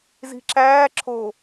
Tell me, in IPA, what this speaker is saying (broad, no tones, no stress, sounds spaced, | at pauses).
z i̤ ǁ æː ǁʰ o